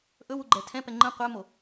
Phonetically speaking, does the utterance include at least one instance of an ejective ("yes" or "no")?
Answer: no